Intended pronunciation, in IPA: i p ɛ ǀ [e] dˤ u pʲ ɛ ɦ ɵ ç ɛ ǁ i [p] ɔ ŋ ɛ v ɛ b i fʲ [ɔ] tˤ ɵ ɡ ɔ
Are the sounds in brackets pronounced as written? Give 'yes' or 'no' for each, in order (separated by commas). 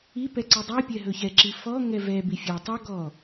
no, no, yes